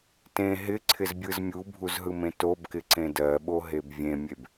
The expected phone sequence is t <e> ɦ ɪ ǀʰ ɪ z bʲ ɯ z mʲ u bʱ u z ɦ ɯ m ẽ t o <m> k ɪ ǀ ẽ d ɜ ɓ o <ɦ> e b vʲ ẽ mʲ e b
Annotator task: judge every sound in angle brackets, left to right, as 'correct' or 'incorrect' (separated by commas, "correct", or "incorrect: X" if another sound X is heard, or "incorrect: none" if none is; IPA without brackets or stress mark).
incorrect: ẽ, incorrect: b, correct